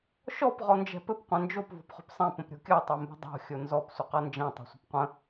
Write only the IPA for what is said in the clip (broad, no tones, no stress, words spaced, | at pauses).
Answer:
ʃɔp ʁɔnd͡ʒɛ̤pɘp qʷɛ̃nd͡ʒop vɔ̤pχo̤psˤɛ̃ pə̃pɾʲo̤kʲɤ tˤɛmbə̤dˤo̤ xʲonzɔp sʷəqɤnd͡ʒɛ̃ tˤɛ̤sʷə̤pqʷə̃